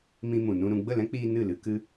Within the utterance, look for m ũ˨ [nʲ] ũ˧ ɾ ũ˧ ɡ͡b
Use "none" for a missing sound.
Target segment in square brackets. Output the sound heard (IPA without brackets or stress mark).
n